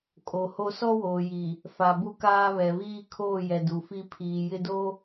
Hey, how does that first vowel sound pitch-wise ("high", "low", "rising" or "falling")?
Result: low